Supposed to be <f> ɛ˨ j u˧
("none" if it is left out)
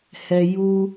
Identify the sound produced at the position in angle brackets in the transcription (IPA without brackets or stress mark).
h